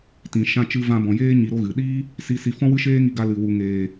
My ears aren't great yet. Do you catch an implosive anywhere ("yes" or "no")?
yes